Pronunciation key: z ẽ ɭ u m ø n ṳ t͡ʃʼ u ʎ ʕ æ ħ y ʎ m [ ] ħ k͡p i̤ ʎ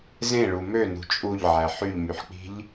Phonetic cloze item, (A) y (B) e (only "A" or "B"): A